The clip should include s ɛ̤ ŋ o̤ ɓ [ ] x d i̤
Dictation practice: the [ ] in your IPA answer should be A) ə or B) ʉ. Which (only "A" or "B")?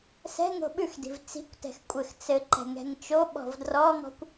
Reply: B